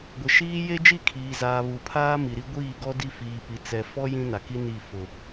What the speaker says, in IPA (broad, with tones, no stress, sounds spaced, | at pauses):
ɡʷ ɪ˨ ʃ iː˦ j e˦ d͡ʒ i˦˨ kʰ iː˨ z aː˨ β u˨ pʰ aː˦ m i˨ ɾ i˦ ɡʷ iː˦˨ ɡ ɔ˦ d i˦ f iː˨ p i˨ t͡s ɛ˨ f ɔ˦ j ĩ˦ n a˨ k i˦ n i˦˨ f ʊ˨